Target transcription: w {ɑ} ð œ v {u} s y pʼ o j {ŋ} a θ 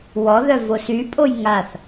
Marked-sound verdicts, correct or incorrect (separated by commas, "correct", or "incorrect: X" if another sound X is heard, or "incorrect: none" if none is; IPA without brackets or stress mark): incorrect: ɔ, incorrect: o, correct